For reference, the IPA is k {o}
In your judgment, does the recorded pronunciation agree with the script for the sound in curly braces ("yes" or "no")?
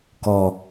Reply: no